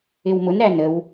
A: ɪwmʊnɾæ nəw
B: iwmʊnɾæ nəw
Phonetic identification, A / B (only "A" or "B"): A